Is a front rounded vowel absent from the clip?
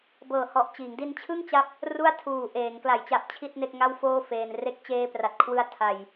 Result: yes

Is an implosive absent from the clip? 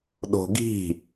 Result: no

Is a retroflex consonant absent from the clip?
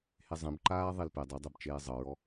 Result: yes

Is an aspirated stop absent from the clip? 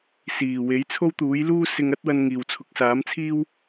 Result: no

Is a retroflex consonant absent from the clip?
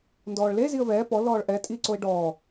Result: no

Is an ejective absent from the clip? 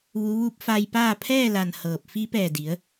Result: yes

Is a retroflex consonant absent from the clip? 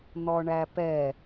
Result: no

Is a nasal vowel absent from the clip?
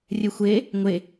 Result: yes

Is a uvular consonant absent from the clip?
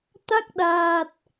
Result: yes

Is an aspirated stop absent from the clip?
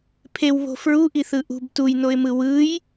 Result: no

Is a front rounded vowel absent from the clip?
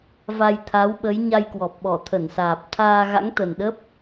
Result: yes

